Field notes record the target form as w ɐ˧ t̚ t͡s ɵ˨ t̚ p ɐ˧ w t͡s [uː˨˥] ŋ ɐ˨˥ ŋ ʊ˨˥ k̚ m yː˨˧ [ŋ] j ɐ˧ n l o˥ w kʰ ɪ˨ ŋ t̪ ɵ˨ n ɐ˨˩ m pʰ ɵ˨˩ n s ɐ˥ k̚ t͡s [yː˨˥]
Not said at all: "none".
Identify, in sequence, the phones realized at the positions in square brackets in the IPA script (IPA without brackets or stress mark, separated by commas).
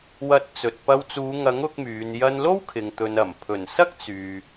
uː˨˧, n, yː˨